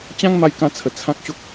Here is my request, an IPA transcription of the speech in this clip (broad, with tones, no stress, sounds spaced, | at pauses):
t͡ɕ ã˦ ŋ m a˧ j k ã˧ t͡sʰ ə˨˩ t͡sʰ ã˦ k̚ ɕ o˦ k̚